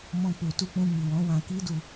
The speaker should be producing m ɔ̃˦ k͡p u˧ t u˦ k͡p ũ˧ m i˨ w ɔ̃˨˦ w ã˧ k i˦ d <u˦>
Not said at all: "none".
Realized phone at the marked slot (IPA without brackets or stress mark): u˧